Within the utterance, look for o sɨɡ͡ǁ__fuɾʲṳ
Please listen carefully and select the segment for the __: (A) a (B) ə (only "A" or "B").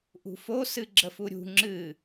B